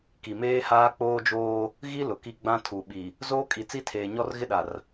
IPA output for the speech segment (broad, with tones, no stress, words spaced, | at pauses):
ki˨meː˦haː˦ k͡poː˦d͡ʒoː˦ | ɣi˦ lʊ˨ki˦ ɡ͡bã˦tʰu˨ɓi˨ | zoː˦kʼi˨ t͡si˦tʰeː˨ ɲɔ˦rɣɪ˦ɗa˨r